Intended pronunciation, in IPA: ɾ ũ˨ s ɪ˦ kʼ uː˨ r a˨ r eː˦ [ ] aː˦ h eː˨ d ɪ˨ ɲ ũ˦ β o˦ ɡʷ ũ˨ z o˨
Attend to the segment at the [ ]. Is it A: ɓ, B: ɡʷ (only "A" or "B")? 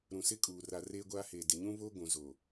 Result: B